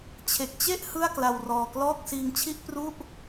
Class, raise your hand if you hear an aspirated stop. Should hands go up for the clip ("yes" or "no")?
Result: yes